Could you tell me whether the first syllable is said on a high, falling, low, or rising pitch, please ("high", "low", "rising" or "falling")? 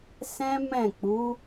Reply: high